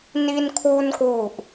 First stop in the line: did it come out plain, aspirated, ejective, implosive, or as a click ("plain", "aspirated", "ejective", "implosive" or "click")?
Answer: aspirated